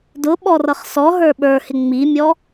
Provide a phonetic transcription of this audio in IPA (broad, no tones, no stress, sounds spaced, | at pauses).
d ʊ ɓ ɔ r ʌ χ s ɔ ɦ ə˞ ɓ ə˞ h ɪ ŋ͡m i mʲ ɔ